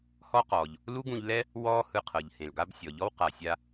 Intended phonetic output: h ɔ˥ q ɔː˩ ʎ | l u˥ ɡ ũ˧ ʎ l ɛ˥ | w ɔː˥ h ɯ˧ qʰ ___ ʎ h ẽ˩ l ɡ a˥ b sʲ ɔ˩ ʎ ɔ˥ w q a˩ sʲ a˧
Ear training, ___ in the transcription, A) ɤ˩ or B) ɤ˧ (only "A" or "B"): A